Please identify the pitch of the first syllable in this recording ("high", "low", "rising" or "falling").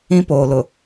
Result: high